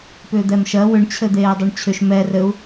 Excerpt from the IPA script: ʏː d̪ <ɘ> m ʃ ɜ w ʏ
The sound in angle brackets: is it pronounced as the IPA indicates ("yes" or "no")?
no